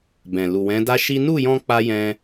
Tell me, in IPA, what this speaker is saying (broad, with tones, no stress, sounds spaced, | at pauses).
b ɛ̃˨ l u˨ w ɛ̃˨˦ d a˦ ʃ i˦ n u˦˨ j ɔ̃˧ k͡p a˦ j ɛ̃˦